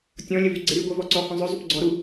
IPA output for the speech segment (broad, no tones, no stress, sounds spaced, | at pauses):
tʲ ɔ̃ lʲ ə v y ɡ͡ǀ e ɾ y ɡʷ œ v ɔ ǀ ɔ h œ̃ zˤ œ zˤ y p ɡ͡ǀ ɔ ɾ u